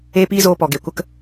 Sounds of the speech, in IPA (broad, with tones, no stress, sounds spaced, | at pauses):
eː˦ p iː˦ z oː˧ p ɔ˨ ɡ e˨ kʷ ə˦ k